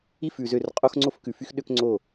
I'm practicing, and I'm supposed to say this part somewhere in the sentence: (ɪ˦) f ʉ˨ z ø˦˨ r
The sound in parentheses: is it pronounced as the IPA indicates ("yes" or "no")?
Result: no